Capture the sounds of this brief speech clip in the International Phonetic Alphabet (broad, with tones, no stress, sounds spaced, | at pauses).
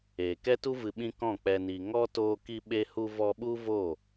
eː˨ k ɛ˦ t u˦ v ɨ˧ ɓ ĩ˦ k ɔ̃˦˨ k͡p ɛ˨ n i˨ ŋ ɔ˦ t oː˧ k i˧ ɓ e˧ h u˧ v ɔ˧ ɓ u˦ v o˦˨